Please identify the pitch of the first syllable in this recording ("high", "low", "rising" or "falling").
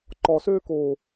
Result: low